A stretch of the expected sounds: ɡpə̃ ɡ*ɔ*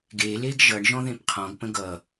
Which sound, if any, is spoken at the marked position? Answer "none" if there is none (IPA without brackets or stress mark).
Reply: ʌ